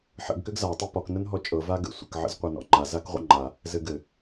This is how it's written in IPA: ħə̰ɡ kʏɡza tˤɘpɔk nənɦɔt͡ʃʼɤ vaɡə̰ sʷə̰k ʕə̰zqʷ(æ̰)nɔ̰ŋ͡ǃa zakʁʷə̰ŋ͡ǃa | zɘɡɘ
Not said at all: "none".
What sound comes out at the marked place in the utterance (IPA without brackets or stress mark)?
æ